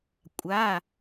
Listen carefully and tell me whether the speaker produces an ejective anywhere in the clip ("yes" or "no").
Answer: yes